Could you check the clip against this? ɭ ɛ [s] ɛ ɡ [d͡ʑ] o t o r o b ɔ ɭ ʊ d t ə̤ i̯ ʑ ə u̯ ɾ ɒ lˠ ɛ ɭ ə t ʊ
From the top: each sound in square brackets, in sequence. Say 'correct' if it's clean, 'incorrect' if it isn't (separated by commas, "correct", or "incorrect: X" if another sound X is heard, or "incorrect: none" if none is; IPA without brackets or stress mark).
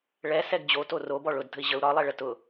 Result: correct, correct